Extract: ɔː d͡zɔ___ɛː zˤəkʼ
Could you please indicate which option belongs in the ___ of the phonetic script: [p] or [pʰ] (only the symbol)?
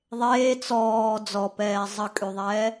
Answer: p